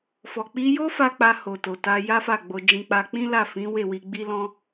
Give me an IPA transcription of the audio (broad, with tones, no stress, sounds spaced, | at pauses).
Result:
f ɔ˨ k͡p i˧ j o˦ f a˦ k͡p a˧ h o˨ t o˨ t a˧ j a˦ f a˦˨ ɡ͡b o˧ d͡ʒ ĩ˧ k͡p a˧ k͡p ĩ˦ l a˦˨ f ĩ˨˦ w e˦˨ w i˧ ɡ͡b i˦ l ɔ̃˦